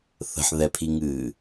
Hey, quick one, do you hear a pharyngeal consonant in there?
yes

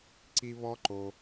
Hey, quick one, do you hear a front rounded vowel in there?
no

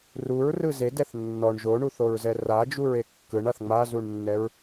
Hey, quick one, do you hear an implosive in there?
no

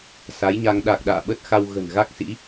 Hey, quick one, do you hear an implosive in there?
yes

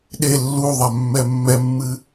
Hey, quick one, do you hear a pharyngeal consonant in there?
no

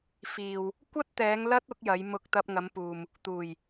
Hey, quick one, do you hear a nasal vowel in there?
no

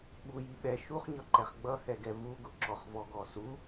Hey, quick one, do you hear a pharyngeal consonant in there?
no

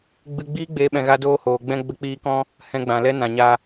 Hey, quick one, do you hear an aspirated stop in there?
no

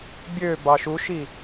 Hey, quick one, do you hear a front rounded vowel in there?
yes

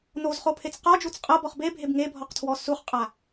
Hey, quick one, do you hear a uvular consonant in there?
yes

